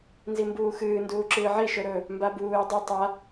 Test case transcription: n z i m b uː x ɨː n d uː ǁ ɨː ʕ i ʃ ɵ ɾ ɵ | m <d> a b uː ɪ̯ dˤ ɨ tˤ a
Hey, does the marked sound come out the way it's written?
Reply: no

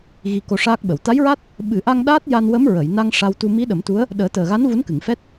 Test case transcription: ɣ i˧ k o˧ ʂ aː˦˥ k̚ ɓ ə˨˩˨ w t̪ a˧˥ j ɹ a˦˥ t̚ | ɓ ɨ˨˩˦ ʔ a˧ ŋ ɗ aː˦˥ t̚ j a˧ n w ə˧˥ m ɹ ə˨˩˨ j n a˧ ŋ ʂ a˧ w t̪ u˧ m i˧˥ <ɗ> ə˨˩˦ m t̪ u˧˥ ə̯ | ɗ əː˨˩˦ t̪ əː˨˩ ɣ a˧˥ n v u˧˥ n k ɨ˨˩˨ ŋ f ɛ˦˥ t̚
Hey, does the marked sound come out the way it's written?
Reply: yes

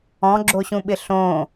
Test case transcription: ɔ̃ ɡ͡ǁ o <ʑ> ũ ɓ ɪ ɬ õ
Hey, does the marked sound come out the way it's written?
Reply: no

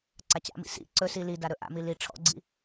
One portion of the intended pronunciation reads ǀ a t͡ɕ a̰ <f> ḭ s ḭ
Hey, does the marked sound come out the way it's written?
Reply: no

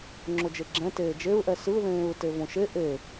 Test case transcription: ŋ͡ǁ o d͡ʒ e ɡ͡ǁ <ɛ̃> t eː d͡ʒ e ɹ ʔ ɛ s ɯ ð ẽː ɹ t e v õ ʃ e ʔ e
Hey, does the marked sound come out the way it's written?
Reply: yes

